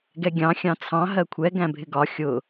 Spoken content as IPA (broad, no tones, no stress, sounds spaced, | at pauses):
ɡ ɛ ɡʲ ɑ̃ xʲ ɑ̃ t͡sʰ ɑ̃ ɦ ɜ kʷʰ ɛ ɡ æ̃ bʱ ɪ ɡ ɒ xʲ ʊ